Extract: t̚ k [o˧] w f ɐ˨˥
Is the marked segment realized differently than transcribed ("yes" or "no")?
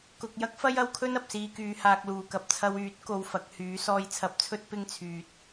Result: no